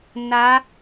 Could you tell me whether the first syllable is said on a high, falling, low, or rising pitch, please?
rising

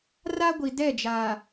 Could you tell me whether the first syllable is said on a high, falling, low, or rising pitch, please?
high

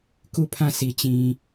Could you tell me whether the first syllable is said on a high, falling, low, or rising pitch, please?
falling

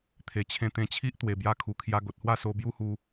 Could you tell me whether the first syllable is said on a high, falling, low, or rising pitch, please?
low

